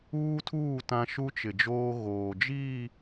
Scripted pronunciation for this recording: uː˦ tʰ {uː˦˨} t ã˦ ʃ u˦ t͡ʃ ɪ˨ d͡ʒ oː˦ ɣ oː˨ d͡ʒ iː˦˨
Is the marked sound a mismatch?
no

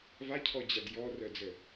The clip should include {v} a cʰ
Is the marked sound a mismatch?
no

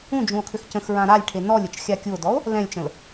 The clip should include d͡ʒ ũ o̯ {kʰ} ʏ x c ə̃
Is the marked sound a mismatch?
no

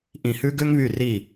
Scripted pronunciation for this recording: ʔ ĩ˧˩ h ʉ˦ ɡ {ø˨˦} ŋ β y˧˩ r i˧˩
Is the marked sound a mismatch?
yes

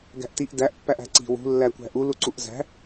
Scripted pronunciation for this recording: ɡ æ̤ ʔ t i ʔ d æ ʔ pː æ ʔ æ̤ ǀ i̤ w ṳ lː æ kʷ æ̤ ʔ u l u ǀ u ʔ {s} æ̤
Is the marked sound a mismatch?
yes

